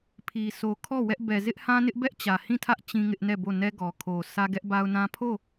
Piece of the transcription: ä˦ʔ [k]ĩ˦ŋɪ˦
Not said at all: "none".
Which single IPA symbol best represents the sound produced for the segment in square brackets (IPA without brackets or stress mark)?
t͡ɕ